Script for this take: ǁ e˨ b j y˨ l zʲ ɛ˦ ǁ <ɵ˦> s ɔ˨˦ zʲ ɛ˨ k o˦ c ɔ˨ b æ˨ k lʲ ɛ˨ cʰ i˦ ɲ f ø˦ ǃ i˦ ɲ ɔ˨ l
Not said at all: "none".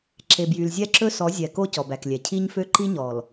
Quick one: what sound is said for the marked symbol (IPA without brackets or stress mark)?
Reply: ɵ˦